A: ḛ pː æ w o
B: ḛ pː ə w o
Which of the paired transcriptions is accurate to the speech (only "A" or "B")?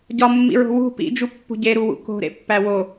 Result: A